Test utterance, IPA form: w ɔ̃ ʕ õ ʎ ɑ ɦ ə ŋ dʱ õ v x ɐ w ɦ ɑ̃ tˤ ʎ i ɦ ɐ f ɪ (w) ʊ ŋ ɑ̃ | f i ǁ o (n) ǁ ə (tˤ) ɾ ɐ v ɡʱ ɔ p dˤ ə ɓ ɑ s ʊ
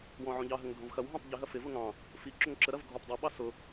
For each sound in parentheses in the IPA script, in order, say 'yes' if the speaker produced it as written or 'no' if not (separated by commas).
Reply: no, no, no